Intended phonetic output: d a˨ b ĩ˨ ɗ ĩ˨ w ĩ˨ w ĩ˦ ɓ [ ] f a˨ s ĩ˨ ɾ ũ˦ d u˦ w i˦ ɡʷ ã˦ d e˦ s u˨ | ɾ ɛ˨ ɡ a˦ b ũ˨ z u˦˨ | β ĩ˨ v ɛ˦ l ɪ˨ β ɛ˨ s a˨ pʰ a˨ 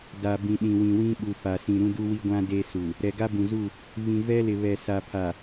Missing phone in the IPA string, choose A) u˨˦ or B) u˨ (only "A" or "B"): B